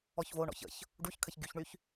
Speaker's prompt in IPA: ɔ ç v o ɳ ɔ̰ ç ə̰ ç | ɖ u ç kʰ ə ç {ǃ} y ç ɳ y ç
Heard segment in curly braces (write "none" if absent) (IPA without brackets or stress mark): ɡ